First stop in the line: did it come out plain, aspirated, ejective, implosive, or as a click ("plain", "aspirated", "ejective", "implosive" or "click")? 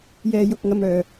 plain